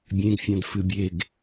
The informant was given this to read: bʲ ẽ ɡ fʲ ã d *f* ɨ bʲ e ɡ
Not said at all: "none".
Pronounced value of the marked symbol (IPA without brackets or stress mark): f